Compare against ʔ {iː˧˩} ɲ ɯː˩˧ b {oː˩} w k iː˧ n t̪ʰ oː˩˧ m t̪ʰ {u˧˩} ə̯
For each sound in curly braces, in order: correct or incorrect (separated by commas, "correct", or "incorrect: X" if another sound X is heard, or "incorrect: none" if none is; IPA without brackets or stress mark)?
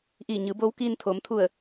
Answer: correct, incorrect: oː˧˥, correct